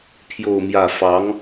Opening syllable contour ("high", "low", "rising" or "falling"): falling